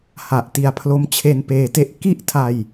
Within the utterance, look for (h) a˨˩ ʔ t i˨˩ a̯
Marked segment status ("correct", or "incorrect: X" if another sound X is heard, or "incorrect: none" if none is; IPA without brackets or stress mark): correct